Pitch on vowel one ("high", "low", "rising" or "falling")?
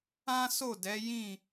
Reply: high